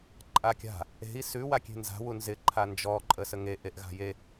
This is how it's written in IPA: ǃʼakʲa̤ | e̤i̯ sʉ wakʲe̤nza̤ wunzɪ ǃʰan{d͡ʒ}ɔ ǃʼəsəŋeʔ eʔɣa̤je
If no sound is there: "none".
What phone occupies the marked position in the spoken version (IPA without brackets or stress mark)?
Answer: d͡ʒ